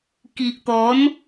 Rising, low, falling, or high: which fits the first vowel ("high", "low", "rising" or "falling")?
low